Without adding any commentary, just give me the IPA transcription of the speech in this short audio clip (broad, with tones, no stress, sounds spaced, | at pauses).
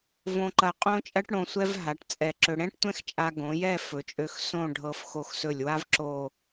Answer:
v õ˧ ǃ ɐ˧ qʼ õ˥ t͡ʃʼ ɐ˥ ʈ ɽ õ˧ sʷ ɛ˥ v ɦ a˩˧ ʈ t͡sʼ ɛ˧˩ ǁ ɵ˧ ɽ ɛ̃˥ ʈ tʷ ɛ̃˥ x t͡ʃʼ a˧ ɡ õ˩˧ j ɛ˥˧ f ɵ˩˧ t͡ʃʼ ø˧ x s õ˥˧ ɖʱ ɤ˧ f x o˧ x s ɵ˧˩ lʲ w a˥ v ǁ o˥˧